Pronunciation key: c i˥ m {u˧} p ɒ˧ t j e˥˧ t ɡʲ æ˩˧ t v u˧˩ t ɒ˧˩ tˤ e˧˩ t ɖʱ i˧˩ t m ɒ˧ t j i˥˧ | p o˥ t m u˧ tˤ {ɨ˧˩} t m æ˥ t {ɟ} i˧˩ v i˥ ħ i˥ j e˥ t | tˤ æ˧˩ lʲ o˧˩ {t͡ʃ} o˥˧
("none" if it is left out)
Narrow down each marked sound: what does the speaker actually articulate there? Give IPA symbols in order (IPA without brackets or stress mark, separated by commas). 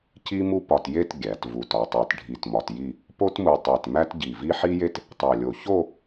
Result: u˥, e˧˩, ɟ, ç